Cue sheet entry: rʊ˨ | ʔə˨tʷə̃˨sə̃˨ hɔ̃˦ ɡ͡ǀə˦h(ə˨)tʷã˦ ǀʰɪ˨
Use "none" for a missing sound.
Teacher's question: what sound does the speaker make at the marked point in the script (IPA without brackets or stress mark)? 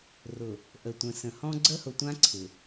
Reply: ʊ˨